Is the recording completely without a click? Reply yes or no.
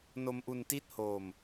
yes